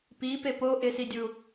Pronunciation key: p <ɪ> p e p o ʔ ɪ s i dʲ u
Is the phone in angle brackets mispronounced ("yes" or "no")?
yes